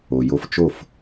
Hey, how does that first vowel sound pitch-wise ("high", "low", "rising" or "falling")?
low